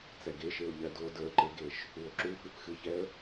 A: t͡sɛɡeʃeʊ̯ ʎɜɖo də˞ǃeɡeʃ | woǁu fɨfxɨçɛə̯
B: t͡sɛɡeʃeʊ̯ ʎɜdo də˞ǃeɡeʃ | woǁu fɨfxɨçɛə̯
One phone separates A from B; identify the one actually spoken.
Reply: B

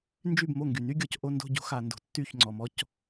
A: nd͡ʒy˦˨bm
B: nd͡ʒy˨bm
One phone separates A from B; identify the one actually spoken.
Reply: A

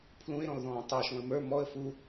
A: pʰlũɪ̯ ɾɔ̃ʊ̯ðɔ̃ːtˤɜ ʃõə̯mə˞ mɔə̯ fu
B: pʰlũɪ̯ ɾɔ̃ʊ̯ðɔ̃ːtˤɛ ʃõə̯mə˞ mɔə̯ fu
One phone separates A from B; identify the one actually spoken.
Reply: A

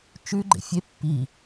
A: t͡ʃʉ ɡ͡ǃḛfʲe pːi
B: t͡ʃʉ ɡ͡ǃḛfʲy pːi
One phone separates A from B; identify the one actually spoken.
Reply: A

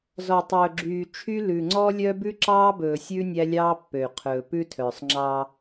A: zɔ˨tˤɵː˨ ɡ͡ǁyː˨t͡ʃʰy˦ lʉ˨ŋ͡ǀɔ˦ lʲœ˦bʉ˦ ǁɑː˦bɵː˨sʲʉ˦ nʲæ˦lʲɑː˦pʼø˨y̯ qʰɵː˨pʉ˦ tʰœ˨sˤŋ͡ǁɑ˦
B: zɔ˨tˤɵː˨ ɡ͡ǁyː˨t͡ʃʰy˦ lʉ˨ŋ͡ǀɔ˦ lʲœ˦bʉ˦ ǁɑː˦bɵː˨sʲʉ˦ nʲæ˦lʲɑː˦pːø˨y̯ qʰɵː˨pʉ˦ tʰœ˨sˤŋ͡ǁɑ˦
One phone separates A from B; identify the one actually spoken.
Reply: B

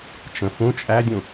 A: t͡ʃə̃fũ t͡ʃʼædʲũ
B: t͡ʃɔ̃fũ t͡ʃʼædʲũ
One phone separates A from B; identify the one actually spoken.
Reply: A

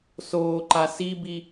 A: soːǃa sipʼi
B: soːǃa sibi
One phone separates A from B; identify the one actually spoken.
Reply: B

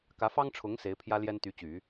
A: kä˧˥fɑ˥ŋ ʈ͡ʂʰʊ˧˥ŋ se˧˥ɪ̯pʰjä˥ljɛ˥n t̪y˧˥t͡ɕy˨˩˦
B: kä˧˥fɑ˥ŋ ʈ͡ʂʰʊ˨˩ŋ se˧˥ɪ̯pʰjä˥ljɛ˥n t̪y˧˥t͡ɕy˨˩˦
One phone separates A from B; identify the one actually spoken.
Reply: A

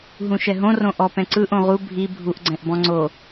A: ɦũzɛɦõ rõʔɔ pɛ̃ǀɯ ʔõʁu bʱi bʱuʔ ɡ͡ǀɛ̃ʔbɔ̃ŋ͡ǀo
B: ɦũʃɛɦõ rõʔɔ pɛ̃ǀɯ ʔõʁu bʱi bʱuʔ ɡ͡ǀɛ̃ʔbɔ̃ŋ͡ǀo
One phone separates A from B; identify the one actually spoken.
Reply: B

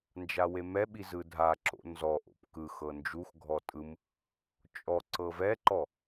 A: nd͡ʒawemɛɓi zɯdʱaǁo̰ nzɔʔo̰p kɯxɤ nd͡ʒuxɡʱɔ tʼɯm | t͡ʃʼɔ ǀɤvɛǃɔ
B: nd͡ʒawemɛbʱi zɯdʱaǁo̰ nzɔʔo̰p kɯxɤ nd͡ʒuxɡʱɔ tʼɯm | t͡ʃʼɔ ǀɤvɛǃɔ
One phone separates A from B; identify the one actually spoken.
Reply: A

